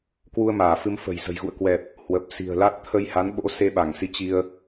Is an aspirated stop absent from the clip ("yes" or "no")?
no